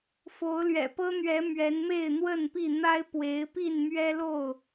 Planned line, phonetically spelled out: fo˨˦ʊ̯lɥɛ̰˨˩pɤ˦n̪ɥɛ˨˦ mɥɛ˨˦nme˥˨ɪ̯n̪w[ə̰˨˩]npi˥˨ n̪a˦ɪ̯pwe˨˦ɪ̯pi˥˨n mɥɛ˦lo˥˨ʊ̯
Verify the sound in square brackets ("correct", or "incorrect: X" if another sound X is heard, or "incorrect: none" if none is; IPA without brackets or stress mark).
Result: incorrect: ə˥˨